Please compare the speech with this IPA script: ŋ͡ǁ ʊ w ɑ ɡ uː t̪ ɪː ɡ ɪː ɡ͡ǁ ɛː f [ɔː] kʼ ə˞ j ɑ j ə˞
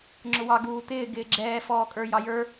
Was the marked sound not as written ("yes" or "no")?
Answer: no